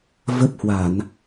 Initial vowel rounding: unrounded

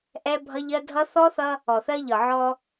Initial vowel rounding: unrounded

